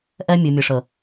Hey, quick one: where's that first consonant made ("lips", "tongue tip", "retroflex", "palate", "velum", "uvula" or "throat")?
throat